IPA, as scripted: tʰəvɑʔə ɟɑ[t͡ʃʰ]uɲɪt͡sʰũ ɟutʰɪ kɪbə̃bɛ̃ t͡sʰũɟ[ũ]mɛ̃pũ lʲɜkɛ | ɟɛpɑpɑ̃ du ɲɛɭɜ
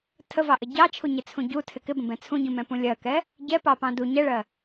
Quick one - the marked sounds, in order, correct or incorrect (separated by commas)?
correct, correct